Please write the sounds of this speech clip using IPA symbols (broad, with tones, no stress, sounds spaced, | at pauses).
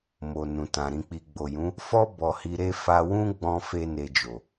m o˨ n ũ˨ t ã˨ ɾ ĩ˨ k͡p i˨ ɡ͡b o˨ j ũ˨˦ | f ɔ˦ b ɔ˧ h i˧ ɾ e˦ f a˧ w ũ˦ ɡ͡b ɔ̃˧ f e˦ n e˧ d͡ʒ o˨